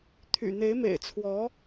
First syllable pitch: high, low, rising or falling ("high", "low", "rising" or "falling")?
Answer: low